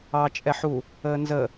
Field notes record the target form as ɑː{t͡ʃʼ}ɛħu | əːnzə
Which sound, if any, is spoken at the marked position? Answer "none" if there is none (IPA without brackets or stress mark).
t͡ʃʼ